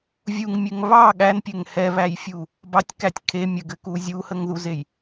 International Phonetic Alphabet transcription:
vʲuŋmʲɘŋ βɑ ɠænpʲɘŋ hɛβæjfʲu | bɑtʲkætʲ kʰe mʲəɡɘku zʲuhəŋðuzej

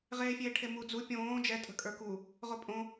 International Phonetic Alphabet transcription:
ʁeːfʲeːʈʰemu d͡zu pʲõː d͡ʒɛ tʼə̤kʼə˞ku | ʁopʼõ

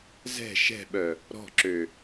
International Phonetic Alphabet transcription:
zɛ̤ ʃɛ̤ɓœ | ɾɔ̤ǁø

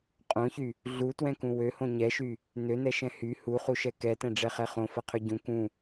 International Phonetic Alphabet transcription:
qʼõçy | ɮutwɛ̃kũ wøhõ ɲɛʃy | nønɛʃɛ̃ hy huχuʃɛ kɛtɛ̃ɖ͡ʐɛχɛ χõfɐqʰø ɟũ kũ

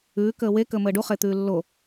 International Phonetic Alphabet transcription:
ʉː kəːwe kəːməːɖu χet̪ʉːlːo

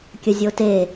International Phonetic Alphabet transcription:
kʲəzʲote

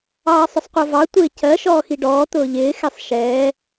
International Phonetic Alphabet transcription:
ɑːsˤʊsˤqʷɜvɑ tʷɪːcɜ ʃɔːxiɖɔː t̪ʊːʎɪː xɛsˤʃɛː

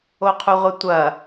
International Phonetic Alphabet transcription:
oqʰuʁʷetʷɐ

